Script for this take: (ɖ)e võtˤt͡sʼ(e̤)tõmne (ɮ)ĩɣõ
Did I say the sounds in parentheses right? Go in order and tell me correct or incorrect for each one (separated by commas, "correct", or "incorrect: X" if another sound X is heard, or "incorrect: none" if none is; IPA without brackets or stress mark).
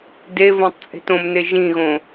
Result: incorrect: d, correct, incorrect: ʒ